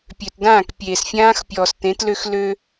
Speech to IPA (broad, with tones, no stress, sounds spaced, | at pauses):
pʲ ø˨ t d ãː˦˨ k pʲ eː˨ s fʲ ãː˦ x pʲ ɔː˨ s t ẽ˨˦ t l ø˦ x l ø˦